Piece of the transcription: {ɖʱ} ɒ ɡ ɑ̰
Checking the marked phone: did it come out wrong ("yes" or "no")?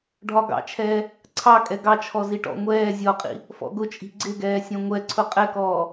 no